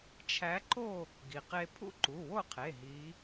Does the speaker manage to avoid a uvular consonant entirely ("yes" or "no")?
no